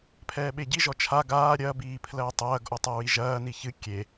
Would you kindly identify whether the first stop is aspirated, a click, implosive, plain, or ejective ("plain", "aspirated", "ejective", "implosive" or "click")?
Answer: aspirated